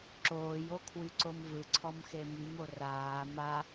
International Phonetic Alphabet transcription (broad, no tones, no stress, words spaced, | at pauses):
ǁoːjo kʰwyǀomvɯǀʰɔm xemymo raː ma